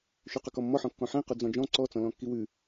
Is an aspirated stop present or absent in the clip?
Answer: absent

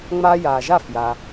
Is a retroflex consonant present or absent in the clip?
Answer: absent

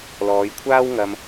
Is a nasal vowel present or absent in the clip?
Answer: absent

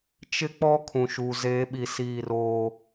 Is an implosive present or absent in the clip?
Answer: present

